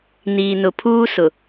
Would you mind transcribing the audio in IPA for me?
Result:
n iː˨ n ʊ˨ pʰ uː˦ s ʊ˨

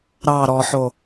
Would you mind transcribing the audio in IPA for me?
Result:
ɾ ɑ ɾ ɔ ħ o

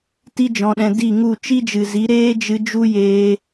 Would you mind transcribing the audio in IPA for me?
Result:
t i˦ d͡ʒ ɔ̃˧ ɗ ɛ̃˧ d i˦˨ ŋ u˦˨ t͡ʃ i˦ d͡ʒ ɨ˨ z i˨˦ ɾ eː˦ d͡ʒ ɨ˧ d͡ʒ u˦ j eː˧

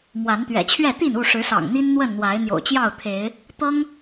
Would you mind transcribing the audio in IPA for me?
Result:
m w a˨˦ n t̪ ɥ ɛ̰˨˩ t͡ɕʰ ɥ ɛ˥˨ t̪ i˥˨ n u˥˨ ʂ ɻ̩˨˦ s ɑ̰˨˩ ŋ n̪ i˦ n n̪ w ə˥˨ n n̪ w a˨˦ ɪ̯ n̪ j o̰˨˩ ʊ̯ t͡ɕ j ɑ˥˨ ʊ̯ t̪ʰ e˨˦ ɪ̯ | t̪ ɤ˦ ŋ

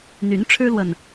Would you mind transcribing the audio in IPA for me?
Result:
n̪ y˨˦ n ʈ͡ʂʰ ɻ̩˦ l w ə˨ n

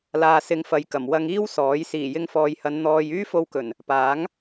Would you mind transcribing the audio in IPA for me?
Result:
l aː˧ s ɪ˧ ŋ f ɐ˨˧ j k ɐ˨˩ m w ɐ˧ ŋ iː˥ w s ɔː˨˥ j s iː˨˩ j ɪ˧ ŋ f ɔː˨ j h ɐ˨˧ n n̪ ɔː˧ j yː˥ f o˧ w k ɵ˨˩ n | p aː˨˥ ŋ

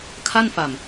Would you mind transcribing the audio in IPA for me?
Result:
kʰ a˥˩ n f a˨˩ m

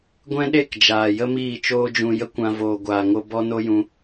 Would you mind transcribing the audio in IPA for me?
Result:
ɡʷ ɛ̃˦ ɗ e˦˨ k d͡ʒ aː˨ j ə˦ m iː˦˨ t͡ʃ oː˦ d͡ʒ ũ˧ j ə˦ kʷ ã˧ v oː˨ ɡʷ aː˨ ŋ o˧ b ɔ˦ n o˦ j ũ˧

